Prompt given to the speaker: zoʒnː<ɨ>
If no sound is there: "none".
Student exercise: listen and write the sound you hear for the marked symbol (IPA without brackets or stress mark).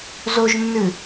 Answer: ɨ